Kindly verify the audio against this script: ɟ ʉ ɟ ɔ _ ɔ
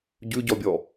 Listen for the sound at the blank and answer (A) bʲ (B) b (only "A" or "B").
A